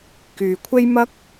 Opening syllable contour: low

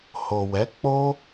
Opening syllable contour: low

